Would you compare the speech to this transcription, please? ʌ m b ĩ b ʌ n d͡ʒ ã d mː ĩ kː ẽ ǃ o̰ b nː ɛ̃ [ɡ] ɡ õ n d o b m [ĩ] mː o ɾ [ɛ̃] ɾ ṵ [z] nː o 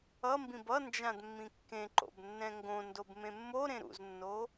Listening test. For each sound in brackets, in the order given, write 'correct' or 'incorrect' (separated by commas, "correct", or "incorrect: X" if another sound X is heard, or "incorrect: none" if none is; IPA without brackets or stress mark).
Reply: incorrect: ŋ, incorrect: ẽ, incorrect: ẽ, correct